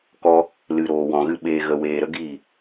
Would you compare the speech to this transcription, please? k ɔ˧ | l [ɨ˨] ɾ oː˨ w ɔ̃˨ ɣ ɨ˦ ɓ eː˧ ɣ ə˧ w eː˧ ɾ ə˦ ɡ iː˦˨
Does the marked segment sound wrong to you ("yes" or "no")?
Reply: no